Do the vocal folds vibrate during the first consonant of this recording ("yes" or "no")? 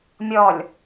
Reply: yes